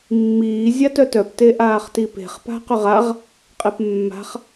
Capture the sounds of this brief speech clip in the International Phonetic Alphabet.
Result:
mːiː zʲatœtœp teʔaːχtipe̤χ pa̤qʏʁaʁ | qʼepmːa̤χ

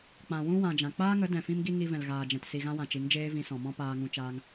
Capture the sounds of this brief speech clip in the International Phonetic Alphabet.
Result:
k͡pã˨wũ˦ wã˨d͡ʒã˨ k͡paː˦ŋə˨˦ dɛ̃˨fĩ˦mɡi˦ ŋi˧vɛ̃˨lɣaː˨d͡ʒɛ̃˨t si˨ɣã˧wã˨ t͡ʃi˨˦ŋd͡ʒeː˦ vĩ˧sɔ̃˨mɔ̃˦ paː˧ŋũ˧t͡ʃaː˧ŋ

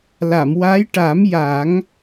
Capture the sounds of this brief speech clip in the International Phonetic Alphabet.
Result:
la˨˩˨mwa˧˥j ʈa˨˩˦mja˨˩˦ŋ

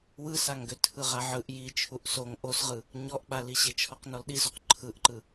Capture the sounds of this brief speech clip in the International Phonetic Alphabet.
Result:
wɯsaŋɡø tʰɯʁaʕɯʔ ji t͡ʃʰuʔsoŋ ʔosʁɯ | ɲɔʔɓaliɕe t͡ʃʰɔqnɔlɗizoq ǃʰɯʔǃɯ

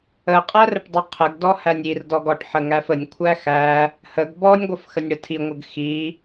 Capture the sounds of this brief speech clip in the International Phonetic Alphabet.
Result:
ə qʼærəʈdˤə qʰəɡdɔhænʲ irdɔɡɔʈ ħəŋæfənʲ kʷʰæxæ | həɡ bɔnʲɡʷəf xənʲɽətʰiŋʷəɡ xi

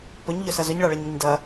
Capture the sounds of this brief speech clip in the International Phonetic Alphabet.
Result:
pɵɲʎɵsɐ zɵɲɭaɭɐɲŋəɲ dɐ

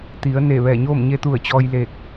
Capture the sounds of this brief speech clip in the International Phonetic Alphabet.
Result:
t̪i˩˧ə̯ne˧˩ ʋɛː˧˩ɲoː˥˨m ɲe˧˥t̪u˧˩ə̯t͡ɕɔː˧j le˧˩k̚

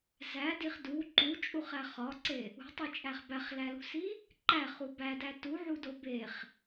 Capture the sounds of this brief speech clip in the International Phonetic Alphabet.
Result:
zædiχ du ǃut͡ʃʼuχæ χɒǀe | ṳtˤit͡ʃʼæχ bæχlælṳsi | ǃæχu bædæ tuʕudo beχ

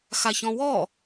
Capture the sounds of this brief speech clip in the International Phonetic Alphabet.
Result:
xaçɔ̃wɔ

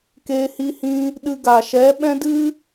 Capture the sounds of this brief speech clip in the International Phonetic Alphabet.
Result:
keː˧hi˧hĩ˧ | ɗɨ˧ɡa˨ʃɛ˨˦ ɓɛ̃˦dɨ˦

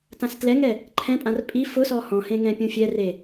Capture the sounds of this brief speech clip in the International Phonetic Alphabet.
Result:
tãstlɛŋɛ | ǃʰɛ̃pʼãr pʼi fʊsɔ hɔ̃hẽ ŋɛ̃pʲũfʲɛre

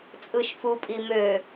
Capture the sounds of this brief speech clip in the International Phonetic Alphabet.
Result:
t͡sʼɯʃfu pʼimø

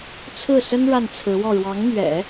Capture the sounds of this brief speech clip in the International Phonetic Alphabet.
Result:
t͡sʰɹ̩˥˩sə˥n ɻa˥˩nt͡sʰɹ̩˧˥wɔ˥˩ ɻwɑ˧˥ŋmɥɛ̰˨˩˦

